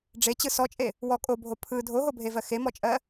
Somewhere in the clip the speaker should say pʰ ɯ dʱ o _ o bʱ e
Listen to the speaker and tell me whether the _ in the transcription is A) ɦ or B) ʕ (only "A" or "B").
A